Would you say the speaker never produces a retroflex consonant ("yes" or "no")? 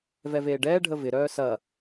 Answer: no